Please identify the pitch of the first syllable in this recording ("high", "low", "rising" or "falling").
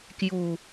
low